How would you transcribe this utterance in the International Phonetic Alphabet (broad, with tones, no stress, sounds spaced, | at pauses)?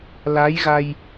l a˧˥ j ɣ a˧ j